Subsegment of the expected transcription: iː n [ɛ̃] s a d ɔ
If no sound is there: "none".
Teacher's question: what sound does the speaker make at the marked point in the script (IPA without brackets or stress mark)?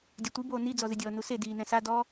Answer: ɛ̃